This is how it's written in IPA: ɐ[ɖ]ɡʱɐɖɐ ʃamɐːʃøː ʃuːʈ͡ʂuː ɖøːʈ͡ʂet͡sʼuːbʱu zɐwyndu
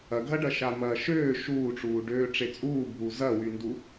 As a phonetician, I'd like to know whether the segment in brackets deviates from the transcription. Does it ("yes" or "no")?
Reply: yes